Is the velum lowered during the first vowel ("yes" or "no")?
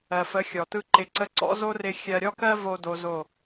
no